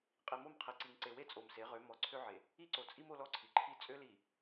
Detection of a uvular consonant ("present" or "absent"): present